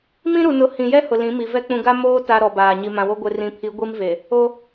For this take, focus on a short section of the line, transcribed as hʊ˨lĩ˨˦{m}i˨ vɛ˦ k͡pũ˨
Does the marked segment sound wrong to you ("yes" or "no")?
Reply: no